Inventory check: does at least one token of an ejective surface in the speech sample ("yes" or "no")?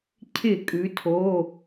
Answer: yes